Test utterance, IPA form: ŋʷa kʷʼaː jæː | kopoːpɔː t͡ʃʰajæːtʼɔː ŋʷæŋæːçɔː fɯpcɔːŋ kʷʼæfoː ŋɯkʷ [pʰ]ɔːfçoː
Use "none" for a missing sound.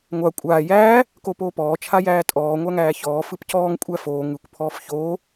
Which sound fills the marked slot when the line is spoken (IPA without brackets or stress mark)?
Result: pʰ